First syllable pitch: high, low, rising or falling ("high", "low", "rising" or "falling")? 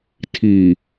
low